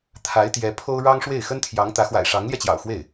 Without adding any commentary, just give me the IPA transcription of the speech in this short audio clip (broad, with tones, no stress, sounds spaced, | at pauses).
t̪ʰ a˧˥ ɪ̯ t̪ j ɛ˧˥ pʰ o˥ ʊ̯ ɻ ɑ˥ ŋ ʂ w e˥˩ ɪ̯ x ə˥ n t̪ʰ j ɑ˧˥ ŋ t̪ ä˧˥ x w a̰˨˩ ɪ̯ ʂ ɑ˧˥ ŋ l j ɛ˧ t͡ɕ j ɑ̰˨˩ ʊ̯ x w e˥˩ ɪ̯